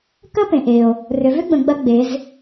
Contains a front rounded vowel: yes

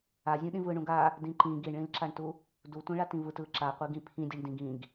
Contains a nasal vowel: yes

